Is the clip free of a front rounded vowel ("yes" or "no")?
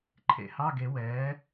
yes